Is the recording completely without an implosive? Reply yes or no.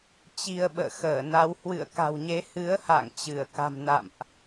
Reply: no